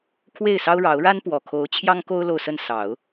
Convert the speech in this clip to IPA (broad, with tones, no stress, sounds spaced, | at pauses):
kʰ w e˥˩ ɪ̯ s ɑ˥ ʊ̯ ɻ ɑ˧˥ ʊ̯ ɻ a˥ n p w ɔ˨˩ kʰ o˧˥ ʊ̯ t͡ɕʰ j ɑ˥ ŋ k o˥ ʊ̯ l o˥˧ ʊ̯ s ə˥˩ n s ɑ˨˩˦ ʊ̯